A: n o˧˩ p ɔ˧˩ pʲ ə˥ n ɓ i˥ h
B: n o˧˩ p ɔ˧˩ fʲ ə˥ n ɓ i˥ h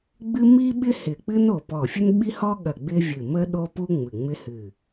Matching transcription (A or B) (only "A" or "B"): B